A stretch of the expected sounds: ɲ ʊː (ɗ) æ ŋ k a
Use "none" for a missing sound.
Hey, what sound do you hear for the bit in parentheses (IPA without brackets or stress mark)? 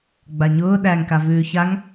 ɗ